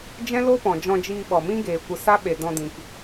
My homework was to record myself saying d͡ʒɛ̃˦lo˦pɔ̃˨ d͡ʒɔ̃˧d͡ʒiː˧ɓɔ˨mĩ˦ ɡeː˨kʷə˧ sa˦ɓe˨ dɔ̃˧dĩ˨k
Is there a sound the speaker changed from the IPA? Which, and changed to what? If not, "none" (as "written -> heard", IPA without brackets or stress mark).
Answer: none